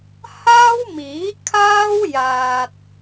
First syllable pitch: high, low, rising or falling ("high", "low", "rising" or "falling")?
high